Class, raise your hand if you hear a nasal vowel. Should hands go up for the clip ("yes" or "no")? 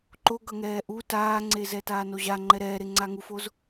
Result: no